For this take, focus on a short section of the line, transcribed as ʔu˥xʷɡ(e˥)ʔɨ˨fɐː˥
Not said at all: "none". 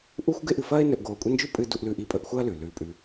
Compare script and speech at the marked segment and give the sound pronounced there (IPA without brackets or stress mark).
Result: e˥